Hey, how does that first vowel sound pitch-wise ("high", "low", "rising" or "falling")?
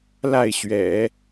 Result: falling